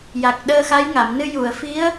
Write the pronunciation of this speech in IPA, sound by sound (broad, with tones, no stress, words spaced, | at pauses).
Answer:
ja˨˩k̚ ɗəː˧xa˧˥jŋa˨˩˨mnɨ˧ ju˨˩˨ə̯fi˧˥ə̯